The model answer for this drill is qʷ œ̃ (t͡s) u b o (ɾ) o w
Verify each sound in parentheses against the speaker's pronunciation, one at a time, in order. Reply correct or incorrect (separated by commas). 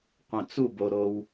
correct, correct